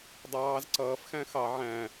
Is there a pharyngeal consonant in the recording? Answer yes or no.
yes